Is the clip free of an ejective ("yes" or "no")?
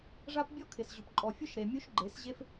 no